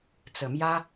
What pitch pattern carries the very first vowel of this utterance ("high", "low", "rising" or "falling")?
low